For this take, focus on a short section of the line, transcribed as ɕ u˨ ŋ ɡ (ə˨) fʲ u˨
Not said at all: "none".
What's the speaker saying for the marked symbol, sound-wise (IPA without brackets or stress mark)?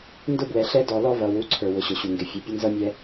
ɪ˨